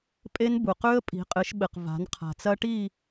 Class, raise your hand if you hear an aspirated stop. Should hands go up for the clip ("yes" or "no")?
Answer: yes